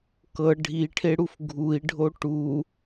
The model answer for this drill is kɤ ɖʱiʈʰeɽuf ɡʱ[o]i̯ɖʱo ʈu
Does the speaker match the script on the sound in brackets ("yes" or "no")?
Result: no